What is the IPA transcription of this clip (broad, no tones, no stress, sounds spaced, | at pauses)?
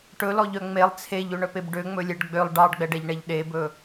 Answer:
ʈ ɵ l ɔ ʎ œ ŋ͡m e lˠ t͡sʰ e ʎ ø ɳ œ p e b ɖ ø ŋ͡m ɵ lʲ ɛ ɖ ɡ͡b ø lˠ ɖ ɑ ɖ ɡ͡b ɛ ɖ ɛ ʎ ɳ ɛ ʎ ɗ e b ɵ